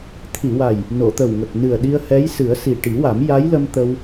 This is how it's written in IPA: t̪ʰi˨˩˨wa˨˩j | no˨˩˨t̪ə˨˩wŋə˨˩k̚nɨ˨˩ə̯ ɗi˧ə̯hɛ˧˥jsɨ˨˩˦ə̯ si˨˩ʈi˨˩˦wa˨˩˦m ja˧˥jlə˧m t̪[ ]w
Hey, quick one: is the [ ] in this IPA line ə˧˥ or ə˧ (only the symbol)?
ə˧